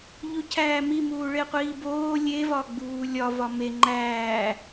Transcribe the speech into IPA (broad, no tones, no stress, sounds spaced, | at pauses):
ʎ u cʰ æː m i m uː ɭ e qʷ iː b oː lʲ e v ɒ ɡ͡b uː lʲ ɒ v ɒ m e ŋ͡ǃ æː